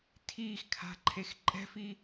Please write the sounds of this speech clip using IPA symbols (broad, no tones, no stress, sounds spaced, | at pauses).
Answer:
tʰ iː x kʰ a̤ ǃʰ e x ǃʼ ɛ̤ f i